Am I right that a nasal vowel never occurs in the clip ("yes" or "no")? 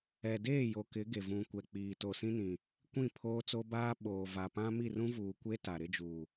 no